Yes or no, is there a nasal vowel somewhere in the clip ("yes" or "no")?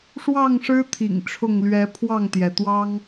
no